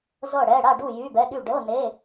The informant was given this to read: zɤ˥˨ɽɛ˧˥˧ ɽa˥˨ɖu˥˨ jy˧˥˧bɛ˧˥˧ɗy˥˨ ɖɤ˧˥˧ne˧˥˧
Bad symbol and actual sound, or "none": none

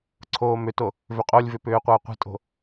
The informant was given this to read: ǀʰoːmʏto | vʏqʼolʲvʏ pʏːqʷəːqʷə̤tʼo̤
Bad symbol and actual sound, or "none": none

